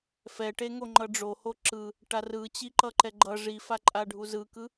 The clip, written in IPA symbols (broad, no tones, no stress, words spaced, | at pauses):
fɛʈeŋo ŋ͡ǃʌɖ͡ʐoho ǁɯ | ʈarɯt͡ɕi ǃʌǃɛɡ͡ǃʌ ʐifaǃʼaɖʱu zɯkɯ